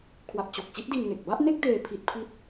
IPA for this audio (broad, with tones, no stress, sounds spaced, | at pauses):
kʰ w a˨˩ p̚ t͡ɕ o˨˩ k̚ t͡ɕ i˦˥ t̚ d i˧ n ŋ e˨˩ k̚ b a˥˩ ʔ n e˥˩ k̚ d eː˧ pʰ i˦˥ t̚ pʰ i˥˩ t̚